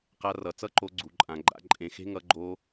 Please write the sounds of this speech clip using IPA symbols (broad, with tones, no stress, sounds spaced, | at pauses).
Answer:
q a˦˥ r ʌ˨˦ t͡s ʌ˦˥ ǃ o˨˦ ɡ͡ǀ u˨˦ ǃʼ ã˨˦ ɡ͡ǃ a̰˦˥ ǃʼ ẽ˨˦ x e̤˦˥ ŋ ʌ˨˦ ɡ͡ǃ o˦˥